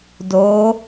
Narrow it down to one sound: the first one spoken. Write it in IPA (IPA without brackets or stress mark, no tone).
d